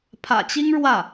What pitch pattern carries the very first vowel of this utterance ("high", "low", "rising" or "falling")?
low